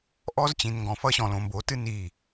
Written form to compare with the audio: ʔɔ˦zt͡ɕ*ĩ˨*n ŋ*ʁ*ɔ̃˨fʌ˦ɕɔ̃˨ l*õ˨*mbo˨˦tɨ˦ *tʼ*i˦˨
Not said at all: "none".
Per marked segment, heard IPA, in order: ĩ˨, ɡ, õ˨, n

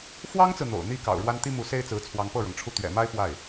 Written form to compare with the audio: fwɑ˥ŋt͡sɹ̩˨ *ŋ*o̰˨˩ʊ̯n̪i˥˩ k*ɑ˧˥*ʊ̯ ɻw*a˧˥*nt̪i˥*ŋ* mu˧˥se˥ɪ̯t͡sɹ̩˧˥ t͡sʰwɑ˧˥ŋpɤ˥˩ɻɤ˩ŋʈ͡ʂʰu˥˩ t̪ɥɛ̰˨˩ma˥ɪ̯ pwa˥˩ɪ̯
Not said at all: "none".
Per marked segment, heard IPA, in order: n̪, ɑ̰˨˩, a˥, none

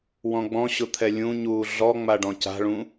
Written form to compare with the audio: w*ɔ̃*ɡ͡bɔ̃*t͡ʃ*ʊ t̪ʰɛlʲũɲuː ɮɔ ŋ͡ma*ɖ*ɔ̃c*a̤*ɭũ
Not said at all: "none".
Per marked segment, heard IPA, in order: ɔ̃, ɕ, ɖ, a̤

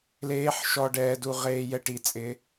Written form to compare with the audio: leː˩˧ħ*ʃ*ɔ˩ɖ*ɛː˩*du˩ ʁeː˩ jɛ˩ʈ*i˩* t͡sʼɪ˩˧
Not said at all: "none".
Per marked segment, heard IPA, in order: ʃ, ɛː˩, i˩

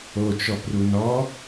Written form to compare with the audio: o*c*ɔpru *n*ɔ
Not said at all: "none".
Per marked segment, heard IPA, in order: t͡ʃ, n

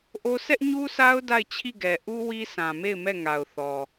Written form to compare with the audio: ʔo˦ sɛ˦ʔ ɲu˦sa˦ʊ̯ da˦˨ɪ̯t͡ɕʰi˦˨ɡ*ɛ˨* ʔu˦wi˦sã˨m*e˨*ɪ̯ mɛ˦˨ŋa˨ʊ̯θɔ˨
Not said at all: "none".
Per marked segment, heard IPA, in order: ɛ˨, e˦˨

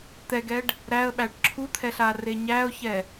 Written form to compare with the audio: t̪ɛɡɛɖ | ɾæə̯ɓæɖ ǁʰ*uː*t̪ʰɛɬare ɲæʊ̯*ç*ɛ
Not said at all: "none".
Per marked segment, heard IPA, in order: u, ç

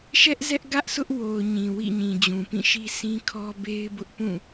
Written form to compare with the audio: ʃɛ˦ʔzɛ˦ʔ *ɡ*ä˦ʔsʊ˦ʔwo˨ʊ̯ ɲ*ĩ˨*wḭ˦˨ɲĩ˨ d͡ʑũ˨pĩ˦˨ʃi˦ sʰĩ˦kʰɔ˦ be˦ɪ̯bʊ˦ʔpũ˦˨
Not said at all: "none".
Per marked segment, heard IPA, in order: ɡ, ĩ˨

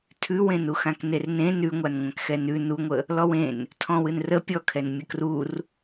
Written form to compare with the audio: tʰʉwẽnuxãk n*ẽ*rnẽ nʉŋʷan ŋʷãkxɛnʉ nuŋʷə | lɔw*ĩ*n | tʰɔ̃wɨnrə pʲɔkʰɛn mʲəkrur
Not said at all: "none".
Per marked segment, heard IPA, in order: e, ẽ

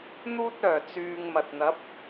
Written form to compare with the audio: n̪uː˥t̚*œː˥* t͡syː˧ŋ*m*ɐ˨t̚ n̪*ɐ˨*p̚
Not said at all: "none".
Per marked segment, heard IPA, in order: œː˨˩, m, ɐ˨˥

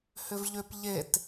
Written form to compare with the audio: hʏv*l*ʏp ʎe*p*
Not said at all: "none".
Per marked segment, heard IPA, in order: ʎ, t

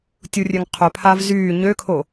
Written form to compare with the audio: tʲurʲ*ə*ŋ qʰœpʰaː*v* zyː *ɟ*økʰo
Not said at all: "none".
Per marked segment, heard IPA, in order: ø, v, ɲ

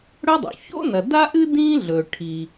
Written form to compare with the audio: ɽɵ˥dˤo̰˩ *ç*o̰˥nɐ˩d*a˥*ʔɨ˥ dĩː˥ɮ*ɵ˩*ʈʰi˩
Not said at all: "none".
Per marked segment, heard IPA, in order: ç, a˥, ɵ˩

